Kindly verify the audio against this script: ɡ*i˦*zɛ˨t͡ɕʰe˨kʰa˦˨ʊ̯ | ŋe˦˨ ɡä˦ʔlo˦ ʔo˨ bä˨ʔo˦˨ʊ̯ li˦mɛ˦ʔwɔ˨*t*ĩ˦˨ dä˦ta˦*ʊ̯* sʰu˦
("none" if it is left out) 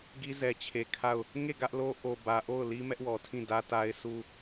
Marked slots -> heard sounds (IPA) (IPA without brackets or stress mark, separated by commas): i˦, tʰ, ɪ̯